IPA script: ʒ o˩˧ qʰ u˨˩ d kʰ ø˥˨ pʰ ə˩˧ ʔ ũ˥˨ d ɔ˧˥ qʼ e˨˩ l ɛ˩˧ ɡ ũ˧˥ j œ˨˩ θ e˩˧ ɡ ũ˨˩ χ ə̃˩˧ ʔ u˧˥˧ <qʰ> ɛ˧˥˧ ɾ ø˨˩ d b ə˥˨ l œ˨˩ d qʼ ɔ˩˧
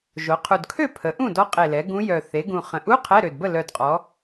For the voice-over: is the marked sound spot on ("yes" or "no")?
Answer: yes